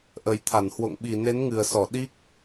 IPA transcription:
ʔə˨˩jt̪ʰa˧˩nhwo̰˧˨ŋ ɓi˨˩ne˨˦nŋɨ˨˩ə̯sɔ˧˩ ɗi˦˥k̚

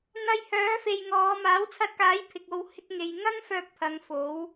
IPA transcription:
n̪ɐ˧j hœː˨˥fe˨jŋɔː˨˧ maː˨˥wt͡sʰɐ˧t̚kaː˨˥j pʰɪ˨k̚o˨˧w hɪ˧k̚ŋe˨jŋɐ˥ŋfœː˧k̚ pʰɐ˨˧ŋfo˨˥w

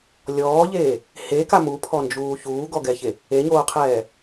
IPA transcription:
lʲɔːʎeː | heka mupʰɔnd͡ʒuː çuːɡɔɡɛçe | eɲoːqʰɛː

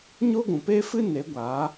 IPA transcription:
ɲo˦ɡʷũ˨ pe˦fɨ˦ ne˨˦ɡʷaː˨˦

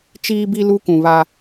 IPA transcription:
t͡ʃiː˦bi˦ lu˦kũ˨βa˦

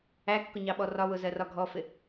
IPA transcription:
ækːʊɲɑɓɔ rɒwʊzɜrɒ ɡʱɔfɪ

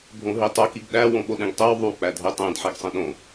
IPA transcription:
bʱõɦitˤo kiɡɗæ wõɓoɗẽɡtˤew ðˤu k͡pædʱetˤẽd ħeɡsˤẽɗõ

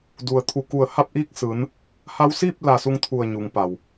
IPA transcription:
du˩ə̯t̪ʰu˧˩ku˧˩ə̯ ha˥˨p̚ʔiː˥˨k̚sɯː˩˧n | ha˧wsiː˥˨p̚ la˧˩su˥˨ŋt̪ʰu˧˩ə̯ ɲu˩˧ŋpa˩w

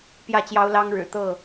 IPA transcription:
pjä˥˨t͡ɕjɑ˦ʊ̯lɑ˦ŋ ɻɻ̩˨˩t̪ɤ˥˨

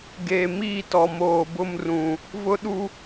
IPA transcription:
ɡeː˨miː˦˨tɔ˨ moː˨bʊ˦mrũ˨ | vʊ˦ɗu˦

